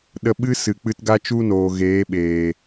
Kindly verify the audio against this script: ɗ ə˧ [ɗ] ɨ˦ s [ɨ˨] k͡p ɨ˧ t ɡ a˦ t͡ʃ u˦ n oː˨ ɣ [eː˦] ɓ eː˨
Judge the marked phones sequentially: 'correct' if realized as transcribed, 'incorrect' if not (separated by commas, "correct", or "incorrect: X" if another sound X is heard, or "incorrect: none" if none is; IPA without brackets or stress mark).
incorrect: ɓ, correct, incorrect: eː˨˦